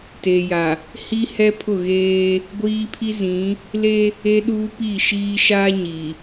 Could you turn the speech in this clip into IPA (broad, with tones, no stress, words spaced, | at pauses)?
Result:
teː˨ja˨ | hi˦hɛ˦pʰʊ˦˨ɣeː˦ | ɡʷiː˦ pʰi˦ zĩ˨˦ | le˦ | e˦ɗuː˦ pi˦˨ʃiː˦ ʃaː˦ɲi˨